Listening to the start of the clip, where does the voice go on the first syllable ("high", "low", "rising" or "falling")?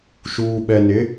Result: low